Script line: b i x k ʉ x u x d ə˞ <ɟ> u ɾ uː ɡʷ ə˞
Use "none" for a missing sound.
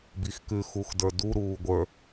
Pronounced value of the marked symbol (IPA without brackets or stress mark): d